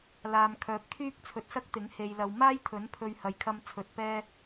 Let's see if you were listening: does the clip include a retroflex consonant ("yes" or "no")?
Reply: no